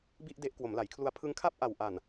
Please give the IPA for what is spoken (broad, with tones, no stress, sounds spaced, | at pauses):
b i˥˩ ʔ d e˦˥ ʔ k w o˩˦ m l a˩˦ j kʰ l u˧ a̯ pʰ ɯ˧ ŋ kʰ a˥˩ p̚ ʔ a˨˩ w ʔ a˨˩ n